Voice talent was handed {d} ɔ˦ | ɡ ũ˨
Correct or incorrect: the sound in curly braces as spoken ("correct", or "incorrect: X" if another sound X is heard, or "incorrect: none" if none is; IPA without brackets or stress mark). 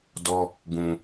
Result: correct